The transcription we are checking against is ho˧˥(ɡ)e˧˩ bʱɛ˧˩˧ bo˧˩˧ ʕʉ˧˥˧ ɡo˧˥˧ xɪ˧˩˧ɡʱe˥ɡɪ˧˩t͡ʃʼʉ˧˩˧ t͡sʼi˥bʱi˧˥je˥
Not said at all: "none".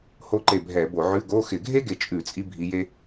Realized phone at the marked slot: ǃ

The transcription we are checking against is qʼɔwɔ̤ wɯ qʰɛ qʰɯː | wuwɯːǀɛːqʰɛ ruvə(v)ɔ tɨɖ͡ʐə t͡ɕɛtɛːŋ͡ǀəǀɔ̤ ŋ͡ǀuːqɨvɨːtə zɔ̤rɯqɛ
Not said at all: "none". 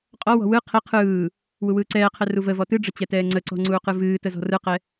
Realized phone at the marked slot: v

